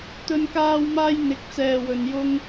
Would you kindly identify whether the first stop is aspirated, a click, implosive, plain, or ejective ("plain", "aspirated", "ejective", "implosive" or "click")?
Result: plain